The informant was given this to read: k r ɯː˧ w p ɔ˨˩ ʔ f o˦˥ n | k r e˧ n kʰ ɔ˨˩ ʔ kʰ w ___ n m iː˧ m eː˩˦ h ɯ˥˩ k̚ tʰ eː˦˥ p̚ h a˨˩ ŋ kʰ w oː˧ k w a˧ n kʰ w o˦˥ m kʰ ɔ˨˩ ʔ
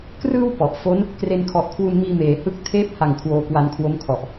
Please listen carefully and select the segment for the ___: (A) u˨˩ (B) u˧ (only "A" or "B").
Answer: B